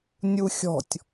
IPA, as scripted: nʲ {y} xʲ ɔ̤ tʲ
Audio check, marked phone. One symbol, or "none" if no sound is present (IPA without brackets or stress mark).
u